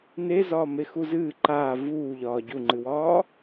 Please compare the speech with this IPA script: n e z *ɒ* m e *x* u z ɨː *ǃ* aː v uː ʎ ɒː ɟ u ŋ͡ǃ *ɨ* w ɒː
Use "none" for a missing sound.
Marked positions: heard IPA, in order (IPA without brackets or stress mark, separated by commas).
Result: ɒː, x, ǃ, ɨ